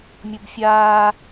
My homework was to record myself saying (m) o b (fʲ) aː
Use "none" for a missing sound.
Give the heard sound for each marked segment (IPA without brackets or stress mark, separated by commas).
mʲ, fʲ